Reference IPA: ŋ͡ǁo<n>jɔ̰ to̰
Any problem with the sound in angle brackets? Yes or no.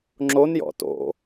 no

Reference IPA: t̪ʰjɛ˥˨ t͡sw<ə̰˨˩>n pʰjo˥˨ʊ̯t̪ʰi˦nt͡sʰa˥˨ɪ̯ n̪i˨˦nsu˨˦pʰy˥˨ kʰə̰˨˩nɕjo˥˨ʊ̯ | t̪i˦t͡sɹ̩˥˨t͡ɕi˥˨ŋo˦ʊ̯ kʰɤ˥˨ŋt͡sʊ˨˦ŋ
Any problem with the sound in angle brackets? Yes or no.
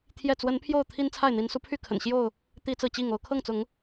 yes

